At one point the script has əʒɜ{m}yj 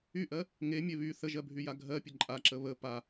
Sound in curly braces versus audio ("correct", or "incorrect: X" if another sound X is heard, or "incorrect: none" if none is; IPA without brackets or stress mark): incorrect: bʱ